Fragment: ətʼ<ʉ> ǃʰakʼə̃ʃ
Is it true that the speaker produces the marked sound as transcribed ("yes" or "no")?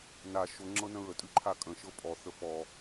yes